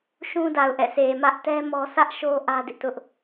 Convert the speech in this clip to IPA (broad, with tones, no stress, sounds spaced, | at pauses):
ʃ ũ˦ d a˨ ʊ̯ ʔ ɛ̰˦˨ s e˨ m ä˦ ʔ t ɛ˦ m ɔ˦ s ä˦ ʔ ʃ o˦ ʔ ä˦ d ɪ˦ ʔ t ʊ˦ ʔ